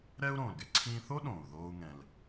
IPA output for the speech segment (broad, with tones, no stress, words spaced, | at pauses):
ɾɛː˥u̯ɾõː˩lɡɛ˧ ǀʰĩː˧θo˥ ɗõː˩u̯ðoː˧u̯ ŋɛ̃˩l